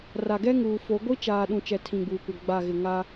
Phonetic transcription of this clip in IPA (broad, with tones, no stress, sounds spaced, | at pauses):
r a˨ ɡ ɛ˦ ŋ uː˨ f o˨˦ ɡʷ i˦ t͡ʃ aː˨ ɗ ũ˨ t͡ʃ ɛ˦ tʰ ĩ˦˨ ɡ͡b uː˨ kʷ a˦ ɡ͡b a˦˨ ɣ ɪ˨ ŋ a˦